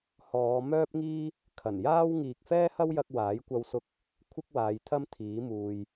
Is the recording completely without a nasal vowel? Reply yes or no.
yes